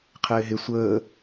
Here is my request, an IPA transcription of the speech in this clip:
qʰɪːɦɪ sʷəː

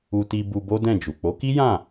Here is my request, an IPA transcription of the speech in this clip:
u˧ti˧ bu˧bo˦dɛ̃˦˨d͡ʒu˨ k͡po˨˦ki˦jã˦˨

